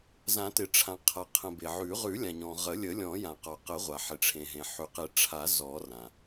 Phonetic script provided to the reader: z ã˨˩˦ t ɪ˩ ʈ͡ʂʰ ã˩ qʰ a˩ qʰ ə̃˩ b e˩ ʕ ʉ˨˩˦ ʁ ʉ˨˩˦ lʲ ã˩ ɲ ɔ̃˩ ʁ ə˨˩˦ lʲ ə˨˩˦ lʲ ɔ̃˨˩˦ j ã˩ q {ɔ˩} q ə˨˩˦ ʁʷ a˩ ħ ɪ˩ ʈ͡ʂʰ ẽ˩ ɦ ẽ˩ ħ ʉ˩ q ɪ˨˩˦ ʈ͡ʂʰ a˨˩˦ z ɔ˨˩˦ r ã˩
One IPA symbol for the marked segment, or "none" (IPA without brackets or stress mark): ɔ˩